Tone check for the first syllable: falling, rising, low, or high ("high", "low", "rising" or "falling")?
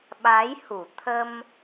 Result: rising